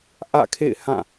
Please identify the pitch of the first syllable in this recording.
falling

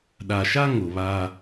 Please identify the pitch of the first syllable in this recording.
low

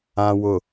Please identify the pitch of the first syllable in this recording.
low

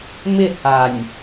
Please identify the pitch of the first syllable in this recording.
falling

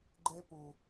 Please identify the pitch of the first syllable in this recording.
high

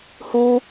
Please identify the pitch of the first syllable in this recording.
high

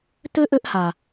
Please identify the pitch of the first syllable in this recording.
high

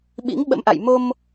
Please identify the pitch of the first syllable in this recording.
rising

